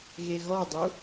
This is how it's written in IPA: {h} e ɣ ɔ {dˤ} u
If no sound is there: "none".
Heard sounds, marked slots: ɣ, dˤ

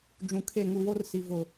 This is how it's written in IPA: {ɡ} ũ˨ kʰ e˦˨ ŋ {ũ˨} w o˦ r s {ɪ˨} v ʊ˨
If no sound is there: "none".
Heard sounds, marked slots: d͡ʒ, u˨, i˨

